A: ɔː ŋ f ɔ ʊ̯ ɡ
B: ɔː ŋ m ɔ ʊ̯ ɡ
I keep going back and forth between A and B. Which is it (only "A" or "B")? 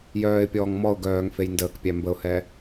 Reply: B